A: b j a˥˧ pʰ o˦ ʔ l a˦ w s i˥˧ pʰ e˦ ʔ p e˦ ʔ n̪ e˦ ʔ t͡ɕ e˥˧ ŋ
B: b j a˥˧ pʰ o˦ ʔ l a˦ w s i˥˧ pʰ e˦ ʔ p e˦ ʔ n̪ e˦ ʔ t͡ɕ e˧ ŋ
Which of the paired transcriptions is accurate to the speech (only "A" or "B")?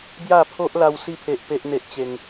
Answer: B